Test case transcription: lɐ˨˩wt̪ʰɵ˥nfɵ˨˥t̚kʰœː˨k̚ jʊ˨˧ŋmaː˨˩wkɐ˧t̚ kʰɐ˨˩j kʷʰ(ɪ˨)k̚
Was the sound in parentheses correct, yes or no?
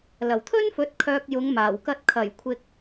yes